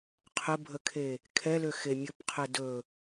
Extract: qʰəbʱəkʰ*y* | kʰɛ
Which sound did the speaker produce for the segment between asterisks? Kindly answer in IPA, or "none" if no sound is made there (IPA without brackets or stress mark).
e